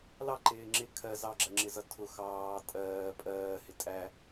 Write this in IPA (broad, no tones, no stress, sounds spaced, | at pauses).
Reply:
l ɑ ǃ ɪː ŋ͡ǁ ɪ kʰ ɜ z ɑ ɡ͡ǁ ɜ ŋ͡ǁ ɪ z ʌ tʰ ʊ x ɑː tʼ ɜː pʼ ɜː h ɪ tʼ æ